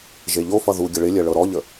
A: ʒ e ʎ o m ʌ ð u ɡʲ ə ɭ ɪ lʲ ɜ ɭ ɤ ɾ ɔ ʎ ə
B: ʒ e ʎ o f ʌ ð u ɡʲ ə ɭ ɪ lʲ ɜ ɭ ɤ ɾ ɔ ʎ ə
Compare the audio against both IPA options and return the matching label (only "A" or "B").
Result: B